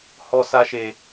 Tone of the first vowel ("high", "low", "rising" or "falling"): high